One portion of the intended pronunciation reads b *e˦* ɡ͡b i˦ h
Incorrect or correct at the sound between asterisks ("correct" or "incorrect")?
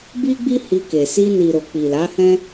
incorrect